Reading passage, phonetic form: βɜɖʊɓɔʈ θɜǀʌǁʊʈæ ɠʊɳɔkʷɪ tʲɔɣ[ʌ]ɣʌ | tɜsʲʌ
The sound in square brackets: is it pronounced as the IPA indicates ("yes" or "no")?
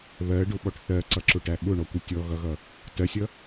yes